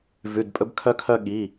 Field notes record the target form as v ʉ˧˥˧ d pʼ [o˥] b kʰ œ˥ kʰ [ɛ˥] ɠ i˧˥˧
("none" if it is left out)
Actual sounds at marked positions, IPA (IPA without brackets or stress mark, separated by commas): ɵ˥, œ˥